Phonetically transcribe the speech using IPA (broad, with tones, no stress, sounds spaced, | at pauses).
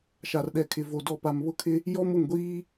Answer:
ʃ a˨ r ɗ ɛ˨ kʰ ɪ˨ v o˨ d ɔ˨ p a˨ m β ʊ˦˨ kʰ ɪ˦ | j ɔ˦ m ʊ˦˨ ŋ ɡʷ iː˦